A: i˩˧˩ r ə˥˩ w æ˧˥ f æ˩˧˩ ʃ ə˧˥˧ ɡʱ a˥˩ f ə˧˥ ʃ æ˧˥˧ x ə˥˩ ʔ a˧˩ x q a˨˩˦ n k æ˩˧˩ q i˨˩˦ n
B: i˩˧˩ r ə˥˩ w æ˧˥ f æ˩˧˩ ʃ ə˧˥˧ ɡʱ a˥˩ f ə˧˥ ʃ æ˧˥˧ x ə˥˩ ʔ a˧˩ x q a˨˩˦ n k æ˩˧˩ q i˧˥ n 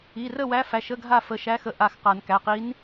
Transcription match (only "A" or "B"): B